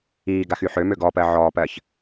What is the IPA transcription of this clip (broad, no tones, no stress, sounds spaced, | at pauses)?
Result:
iː ɡ a x y ħ ø m ø ɡ ɔ p ɜ ʕ ɔː p ɜ ç